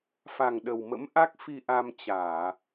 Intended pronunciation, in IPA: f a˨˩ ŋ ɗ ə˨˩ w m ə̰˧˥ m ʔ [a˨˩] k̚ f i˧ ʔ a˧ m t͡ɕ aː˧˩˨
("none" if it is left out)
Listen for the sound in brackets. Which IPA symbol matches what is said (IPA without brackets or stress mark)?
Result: a˦˥